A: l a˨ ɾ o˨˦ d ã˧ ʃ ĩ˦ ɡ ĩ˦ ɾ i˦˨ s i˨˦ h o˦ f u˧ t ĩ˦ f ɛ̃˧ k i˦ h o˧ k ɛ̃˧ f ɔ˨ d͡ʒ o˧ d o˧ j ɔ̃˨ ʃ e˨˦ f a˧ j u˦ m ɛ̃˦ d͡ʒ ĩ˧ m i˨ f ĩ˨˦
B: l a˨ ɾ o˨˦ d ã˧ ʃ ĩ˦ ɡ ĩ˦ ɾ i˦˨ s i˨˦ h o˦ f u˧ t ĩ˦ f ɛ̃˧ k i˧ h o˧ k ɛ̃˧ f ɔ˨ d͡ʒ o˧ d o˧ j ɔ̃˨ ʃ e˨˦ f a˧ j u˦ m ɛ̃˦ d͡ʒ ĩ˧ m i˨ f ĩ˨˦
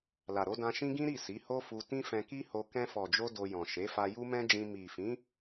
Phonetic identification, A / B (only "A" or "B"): A